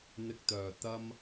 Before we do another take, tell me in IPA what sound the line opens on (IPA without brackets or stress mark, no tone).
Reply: n̪